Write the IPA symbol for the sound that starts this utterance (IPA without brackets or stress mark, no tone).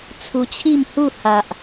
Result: t͡sʰ